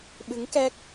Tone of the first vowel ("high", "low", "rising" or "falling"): rising